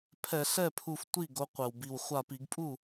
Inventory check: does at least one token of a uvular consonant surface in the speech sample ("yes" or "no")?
yes